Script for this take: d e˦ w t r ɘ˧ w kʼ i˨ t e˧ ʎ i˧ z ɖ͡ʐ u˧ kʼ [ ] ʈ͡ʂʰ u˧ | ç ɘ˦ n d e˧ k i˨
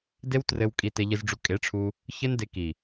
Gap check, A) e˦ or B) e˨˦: B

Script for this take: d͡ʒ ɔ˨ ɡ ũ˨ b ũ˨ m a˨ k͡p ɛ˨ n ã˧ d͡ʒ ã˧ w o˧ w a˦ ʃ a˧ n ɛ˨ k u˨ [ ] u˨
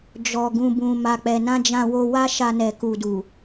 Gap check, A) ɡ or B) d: B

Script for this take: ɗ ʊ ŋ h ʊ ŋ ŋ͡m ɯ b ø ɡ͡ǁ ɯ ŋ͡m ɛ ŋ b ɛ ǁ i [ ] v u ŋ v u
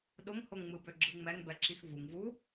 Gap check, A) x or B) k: A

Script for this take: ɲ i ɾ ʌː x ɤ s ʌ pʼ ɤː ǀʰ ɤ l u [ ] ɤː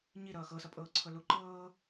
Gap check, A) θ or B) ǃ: B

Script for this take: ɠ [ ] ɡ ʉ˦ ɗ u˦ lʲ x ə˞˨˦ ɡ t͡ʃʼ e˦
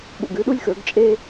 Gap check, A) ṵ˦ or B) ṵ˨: B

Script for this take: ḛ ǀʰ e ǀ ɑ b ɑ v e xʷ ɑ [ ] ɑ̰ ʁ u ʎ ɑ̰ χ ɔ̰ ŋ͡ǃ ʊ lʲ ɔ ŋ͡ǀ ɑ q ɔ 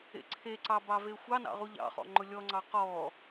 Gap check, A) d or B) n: B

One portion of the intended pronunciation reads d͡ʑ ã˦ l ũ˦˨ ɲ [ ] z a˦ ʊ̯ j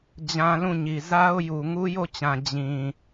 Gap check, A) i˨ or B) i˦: A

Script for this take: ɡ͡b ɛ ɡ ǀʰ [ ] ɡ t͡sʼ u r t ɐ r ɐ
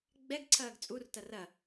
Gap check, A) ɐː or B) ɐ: A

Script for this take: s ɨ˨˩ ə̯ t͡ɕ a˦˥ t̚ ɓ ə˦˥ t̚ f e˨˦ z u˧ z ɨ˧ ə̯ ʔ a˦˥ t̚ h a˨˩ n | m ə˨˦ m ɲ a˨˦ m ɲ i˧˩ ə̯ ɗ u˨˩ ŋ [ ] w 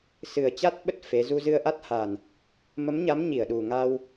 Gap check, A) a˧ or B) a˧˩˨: A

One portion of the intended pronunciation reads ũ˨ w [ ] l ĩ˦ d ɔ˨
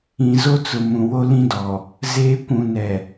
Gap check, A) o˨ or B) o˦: B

